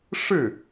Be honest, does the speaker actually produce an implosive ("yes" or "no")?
no